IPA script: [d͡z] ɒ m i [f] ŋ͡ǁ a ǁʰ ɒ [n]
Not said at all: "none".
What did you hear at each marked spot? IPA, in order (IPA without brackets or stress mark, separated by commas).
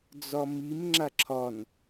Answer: d͡z, m, n